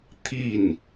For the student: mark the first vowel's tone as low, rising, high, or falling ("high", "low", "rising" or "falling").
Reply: falling